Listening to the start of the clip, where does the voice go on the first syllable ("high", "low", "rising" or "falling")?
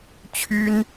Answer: high